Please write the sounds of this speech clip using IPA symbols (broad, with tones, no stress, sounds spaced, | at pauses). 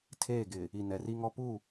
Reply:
tʰ eː˦˨ ɡ ɪ˨ | i˨ n ɛ˨ r i˦ ŋ ɔ˦ p uː˦˨